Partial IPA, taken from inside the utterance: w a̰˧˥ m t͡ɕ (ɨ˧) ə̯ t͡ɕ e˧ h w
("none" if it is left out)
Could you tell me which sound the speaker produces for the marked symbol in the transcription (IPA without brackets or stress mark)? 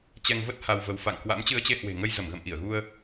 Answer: ɨ˧